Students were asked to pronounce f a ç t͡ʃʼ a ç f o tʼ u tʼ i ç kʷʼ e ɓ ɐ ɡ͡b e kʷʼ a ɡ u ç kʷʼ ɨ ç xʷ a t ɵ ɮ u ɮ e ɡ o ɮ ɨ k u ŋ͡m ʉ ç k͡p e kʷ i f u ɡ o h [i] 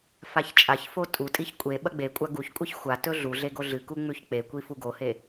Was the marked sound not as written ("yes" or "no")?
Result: yes